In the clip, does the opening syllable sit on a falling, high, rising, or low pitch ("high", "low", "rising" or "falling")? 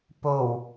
low